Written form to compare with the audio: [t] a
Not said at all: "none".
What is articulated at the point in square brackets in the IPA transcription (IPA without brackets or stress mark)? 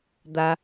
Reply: d̪